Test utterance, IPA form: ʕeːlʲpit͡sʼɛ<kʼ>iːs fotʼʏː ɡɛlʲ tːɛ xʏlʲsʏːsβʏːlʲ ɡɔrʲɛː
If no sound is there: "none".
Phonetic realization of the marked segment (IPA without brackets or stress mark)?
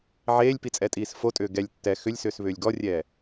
tʼ